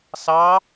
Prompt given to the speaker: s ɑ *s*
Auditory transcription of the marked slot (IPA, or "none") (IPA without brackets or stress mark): none